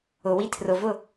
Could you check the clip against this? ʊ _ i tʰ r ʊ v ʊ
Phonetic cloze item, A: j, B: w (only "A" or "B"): B